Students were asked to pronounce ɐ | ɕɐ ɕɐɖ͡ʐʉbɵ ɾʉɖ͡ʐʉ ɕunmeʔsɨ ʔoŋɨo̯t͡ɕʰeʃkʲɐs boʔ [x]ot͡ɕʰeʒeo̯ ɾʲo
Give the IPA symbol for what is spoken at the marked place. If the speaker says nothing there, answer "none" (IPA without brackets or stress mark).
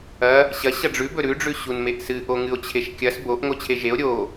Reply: ŋ